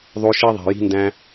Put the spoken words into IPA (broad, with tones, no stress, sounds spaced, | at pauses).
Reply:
ðˤ o˧ ʃ i˧ ðˤ e̤˨ j i̤˧ n d æ̃˧